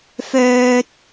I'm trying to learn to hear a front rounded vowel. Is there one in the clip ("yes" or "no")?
yes